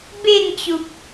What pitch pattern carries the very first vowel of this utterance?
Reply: falling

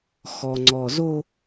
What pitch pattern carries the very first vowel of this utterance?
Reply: low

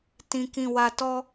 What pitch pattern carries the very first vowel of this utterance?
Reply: low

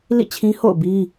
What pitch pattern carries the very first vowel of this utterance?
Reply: falling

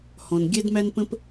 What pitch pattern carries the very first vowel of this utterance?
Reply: low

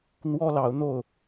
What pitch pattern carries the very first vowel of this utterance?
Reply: high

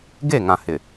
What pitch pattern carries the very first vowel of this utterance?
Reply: falling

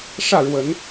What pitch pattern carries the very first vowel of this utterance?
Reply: falling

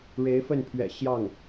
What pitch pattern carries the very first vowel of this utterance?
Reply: rising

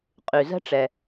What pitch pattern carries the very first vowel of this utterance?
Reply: low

